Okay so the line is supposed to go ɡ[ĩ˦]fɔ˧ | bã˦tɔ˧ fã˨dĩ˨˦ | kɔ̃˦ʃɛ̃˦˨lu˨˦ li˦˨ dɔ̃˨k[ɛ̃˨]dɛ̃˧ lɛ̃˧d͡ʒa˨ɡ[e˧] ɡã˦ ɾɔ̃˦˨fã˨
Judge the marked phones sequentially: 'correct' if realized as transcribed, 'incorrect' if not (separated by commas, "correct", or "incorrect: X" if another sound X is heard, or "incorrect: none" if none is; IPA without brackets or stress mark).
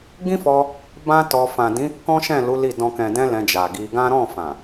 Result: correct, correct, incorrect: i˧